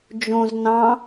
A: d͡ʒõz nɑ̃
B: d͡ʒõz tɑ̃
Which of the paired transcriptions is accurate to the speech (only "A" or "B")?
A